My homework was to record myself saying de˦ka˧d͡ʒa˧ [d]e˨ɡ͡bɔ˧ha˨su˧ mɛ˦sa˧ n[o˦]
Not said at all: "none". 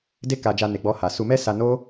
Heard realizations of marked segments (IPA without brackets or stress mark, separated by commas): n, o˦